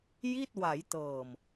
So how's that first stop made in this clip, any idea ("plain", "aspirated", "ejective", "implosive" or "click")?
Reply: plain